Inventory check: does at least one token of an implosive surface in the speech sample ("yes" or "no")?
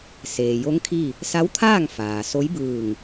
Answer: no